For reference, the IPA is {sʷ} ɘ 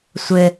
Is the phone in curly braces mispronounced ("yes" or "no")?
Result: no